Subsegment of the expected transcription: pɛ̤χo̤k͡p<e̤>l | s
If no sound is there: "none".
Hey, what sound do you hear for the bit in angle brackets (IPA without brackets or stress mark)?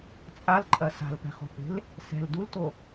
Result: e̤